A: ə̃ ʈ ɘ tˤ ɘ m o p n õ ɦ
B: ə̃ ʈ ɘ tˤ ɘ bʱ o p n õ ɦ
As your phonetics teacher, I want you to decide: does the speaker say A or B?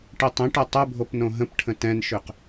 B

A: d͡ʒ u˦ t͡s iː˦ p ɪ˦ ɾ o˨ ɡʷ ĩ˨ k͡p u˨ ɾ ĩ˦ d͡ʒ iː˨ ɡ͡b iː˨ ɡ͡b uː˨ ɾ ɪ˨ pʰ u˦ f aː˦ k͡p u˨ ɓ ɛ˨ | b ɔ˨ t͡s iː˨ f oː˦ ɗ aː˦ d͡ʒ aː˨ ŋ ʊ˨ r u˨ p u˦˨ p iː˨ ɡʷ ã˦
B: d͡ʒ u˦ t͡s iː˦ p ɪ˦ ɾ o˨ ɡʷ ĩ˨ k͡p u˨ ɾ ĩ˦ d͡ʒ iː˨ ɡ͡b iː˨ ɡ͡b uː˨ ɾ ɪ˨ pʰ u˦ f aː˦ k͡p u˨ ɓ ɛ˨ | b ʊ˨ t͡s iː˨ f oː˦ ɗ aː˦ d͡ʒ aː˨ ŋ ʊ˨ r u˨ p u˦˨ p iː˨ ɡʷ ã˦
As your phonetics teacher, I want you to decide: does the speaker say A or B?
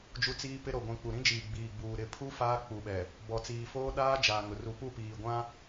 A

